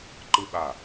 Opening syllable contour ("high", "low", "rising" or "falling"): high